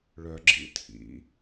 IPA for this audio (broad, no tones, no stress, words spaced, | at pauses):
ɭœɡ͡ǁḭ tʰḭ